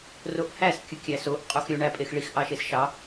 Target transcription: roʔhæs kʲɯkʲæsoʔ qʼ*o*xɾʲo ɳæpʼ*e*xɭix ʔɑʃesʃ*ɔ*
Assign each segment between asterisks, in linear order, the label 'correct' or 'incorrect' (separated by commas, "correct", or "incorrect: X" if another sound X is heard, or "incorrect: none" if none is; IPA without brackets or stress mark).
correct, correct, incorrect: ɑ